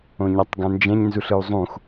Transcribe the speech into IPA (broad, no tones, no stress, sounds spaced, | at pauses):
õ ɲ a tˤ ɡ ã n d͡ʒ ɛ̃ ɲ n z u ɬ ɯ u̯ zˤ ũ x